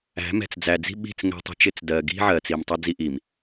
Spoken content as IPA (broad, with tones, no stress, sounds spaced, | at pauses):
æ̤˨˦ m ɛ̤˨ t͡s d͡z æ˨ d͡z i̤˦ ɓ i̤˦˨ t͡s ŋ ɛ̤˦ tˤ ə̤˦ t͡ʃ ɪ˦ t͡s d ɜ˨ ɡ i̤˦ ʕ ɜ˨ t͡s i˨ m tˤ ʌ˦ d͡z i˦ ʔ i˨ m